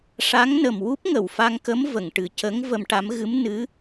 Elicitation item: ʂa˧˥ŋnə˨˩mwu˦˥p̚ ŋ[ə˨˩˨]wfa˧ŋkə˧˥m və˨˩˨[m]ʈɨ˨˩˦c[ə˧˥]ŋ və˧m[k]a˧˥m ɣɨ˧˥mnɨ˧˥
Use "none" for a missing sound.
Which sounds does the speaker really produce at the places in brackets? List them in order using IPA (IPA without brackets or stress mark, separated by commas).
ə˨˩˨, ŋ, ə˧˥, ʈ